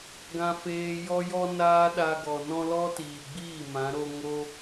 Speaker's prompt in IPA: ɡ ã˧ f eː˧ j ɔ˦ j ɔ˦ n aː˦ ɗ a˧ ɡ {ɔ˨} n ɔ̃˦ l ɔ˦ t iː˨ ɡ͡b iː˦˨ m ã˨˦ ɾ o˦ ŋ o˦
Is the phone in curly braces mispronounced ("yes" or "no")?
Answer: no